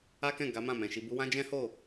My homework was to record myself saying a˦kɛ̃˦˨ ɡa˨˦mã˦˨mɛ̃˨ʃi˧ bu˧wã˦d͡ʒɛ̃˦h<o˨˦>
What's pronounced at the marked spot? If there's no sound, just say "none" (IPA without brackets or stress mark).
o˦˨